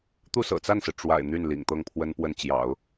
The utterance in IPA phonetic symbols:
t̪u˥˩ sɤ̰˨˩t͡sa˥˩nsɹ̩˩ ʈ͡ʂwa̰˨˩ɪ̯ n̪y˥˩nlḭ˨˩ŋ t̪ɤ˥˩ŋpʰwə˥npwə˥˩n t͡ɕjɑ̰˨˩˦ʊ̯

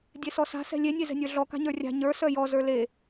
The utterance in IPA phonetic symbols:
dʲesɔsa̤ sɛ̤lʲe nʲezɛ̤nʲə˞ɮɔ ka̤ɲə˞rʲa̤ ɲə˞ sœjɔ zə˞le

